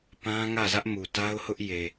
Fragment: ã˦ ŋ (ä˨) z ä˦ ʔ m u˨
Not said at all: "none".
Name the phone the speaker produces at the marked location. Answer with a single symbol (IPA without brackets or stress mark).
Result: ä˦˨